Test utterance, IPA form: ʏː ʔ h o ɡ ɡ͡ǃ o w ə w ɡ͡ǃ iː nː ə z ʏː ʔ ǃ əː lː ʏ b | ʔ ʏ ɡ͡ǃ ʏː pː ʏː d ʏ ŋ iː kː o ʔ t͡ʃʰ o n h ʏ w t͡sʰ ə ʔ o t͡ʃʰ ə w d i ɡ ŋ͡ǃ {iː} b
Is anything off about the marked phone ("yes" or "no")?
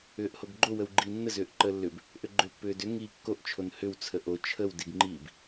no